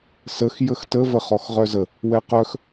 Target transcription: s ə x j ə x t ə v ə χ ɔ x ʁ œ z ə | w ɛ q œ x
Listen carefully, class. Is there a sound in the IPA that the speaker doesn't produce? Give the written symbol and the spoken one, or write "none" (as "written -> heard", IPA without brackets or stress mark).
none